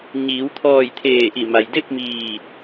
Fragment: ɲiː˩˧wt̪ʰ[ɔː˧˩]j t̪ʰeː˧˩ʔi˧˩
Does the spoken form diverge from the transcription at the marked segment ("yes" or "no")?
no